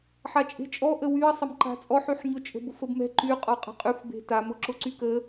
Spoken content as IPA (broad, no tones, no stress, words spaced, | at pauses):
ħat͡ʃʼe̤t͡ʃʼɔ ʔəwyɐ̯sˤɐm ǃa̤t͡sʼɔħyħ ɲʊt͡ʃʼə̤bʊf əbmɛ̤ ǃy qʼɔqʼə̤qʼyf be̤tamʊ ǁʊǀykə